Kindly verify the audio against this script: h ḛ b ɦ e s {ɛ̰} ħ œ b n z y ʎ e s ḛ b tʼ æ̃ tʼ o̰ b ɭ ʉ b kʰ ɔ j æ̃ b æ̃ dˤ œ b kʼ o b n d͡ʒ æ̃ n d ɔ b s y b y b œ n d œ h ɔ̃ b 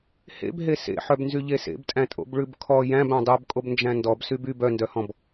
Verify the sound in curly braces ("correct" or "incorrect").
incorrect